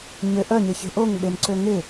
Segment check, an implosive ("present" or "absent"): present